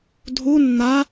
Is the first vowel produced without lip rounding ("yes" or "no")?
no